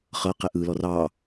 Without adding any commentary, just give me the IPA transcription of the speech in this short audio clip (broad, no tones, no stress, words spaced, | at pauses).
χɤ qɛʔɯlɔ rɑ